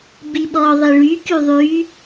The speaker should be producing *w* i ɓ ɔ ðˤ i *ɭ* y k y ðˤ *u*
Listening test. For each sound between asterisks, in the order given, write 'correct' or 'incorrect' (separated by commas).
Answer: incorrect, correct, incorrect